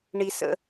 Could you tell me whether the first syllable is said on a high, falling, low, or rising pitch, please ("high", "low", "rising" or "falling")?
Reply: high